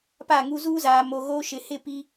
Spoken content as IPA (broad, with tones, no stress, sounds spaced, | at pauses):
p a˦˨ ŋ u˦ z uː˦ z aː˨ m o˨ ɣ oː˦ ʃ ɪ˨ h ɪ˦˨ p i˨